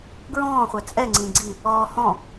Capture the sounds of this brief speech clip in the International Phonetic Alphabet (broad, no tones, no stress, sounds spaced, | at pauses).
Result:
ɡ ɹ ɔ̃ː χʷ ɛ t͡sʼ ɛ ŋ͡ǀ ĩ ɡ͡ǀ i | ɔː h ɔ̃